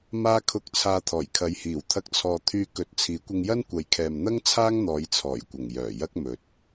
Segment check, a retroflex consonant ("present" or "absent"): absent